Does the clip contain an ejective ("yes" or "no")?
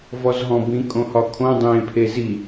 yes